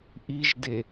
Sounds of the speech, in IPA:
ʔ i ʒ d e

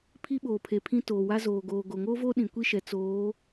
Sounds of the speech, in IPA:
pʰ i˦ ɓ oː˨ pʰ e˨ pʰ ĩ˦ t oː˨ w a˦ z oː˨ ɡ oː˨ ɡ o˨ ŋ oː˦ v oː˦ ɗ ĩ˨ kʷ i˦ ʃ ɛ˨ t͡s oː˨˦

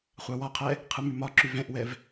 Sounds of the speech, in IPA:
χʷ ɑ w ɒ qʰ ɛ | qʰ ɯ m y m ɒ ǁ y v ɛ̃ ʔ w ɛ v

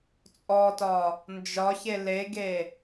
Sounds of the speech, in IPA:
t͡sʼ ɔ t ɒ | n d͡ʒ ɒ ç e l e ɡ e

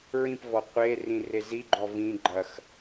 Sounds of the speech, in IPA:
ɹ ĩ p v ɔ qʷ e r ĩ r e z i ɡ͡ǃ ɔ v ĩ ɡ͡ǃ ɐ x

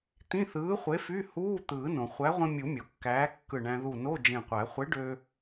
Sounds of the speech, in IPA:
t̪ ĩ˧˥˧ θ ɯː˨˥ χʷ e˨˥ f y˧˥˧ h uː˧˥˧ t̪ ɯː˨˩˦ n õ˩ χʷ æ˨˥ ʁʷ ĩ˧ mʲ u˨˩˦ mʲ o˩ kː æː˨˥ kː ɯ˧˩ ɳ æ̃˧ ð u˧˩ n o˧˥˧ d͡ʒ ẽ˧˩ qʷ æ˨˩˦ χʷ e˨˥ ɖ ø˧

